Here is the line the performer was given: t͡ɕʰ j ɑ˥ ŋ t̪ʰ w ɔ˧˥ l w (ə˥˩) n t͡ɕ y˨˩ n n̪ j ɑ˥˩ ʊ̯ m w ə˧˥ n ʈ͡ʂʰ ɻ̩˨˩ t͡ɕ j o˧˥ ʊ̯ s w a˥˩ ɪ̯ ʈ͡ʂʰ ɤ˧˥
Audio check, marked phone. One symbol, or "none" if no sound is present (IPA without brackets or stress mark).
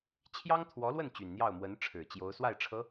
ə˥˩